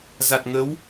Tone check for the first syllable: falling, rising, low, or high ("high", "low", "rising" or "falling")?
low